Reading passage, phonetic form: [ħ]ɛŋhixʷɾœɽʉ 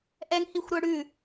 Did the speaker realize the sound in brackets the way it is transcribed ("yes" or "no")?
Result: no